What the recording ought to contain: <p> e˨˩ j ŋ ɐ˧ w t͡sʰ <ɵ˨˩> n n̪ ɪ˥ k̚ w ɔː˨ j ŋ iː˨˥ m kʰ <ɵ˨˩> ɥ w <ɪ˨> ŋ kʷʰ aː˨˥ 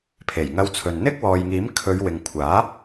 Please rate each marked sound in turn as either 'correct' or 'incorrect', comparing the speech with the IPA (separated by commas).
incorrect, incorrect, incorrect, correct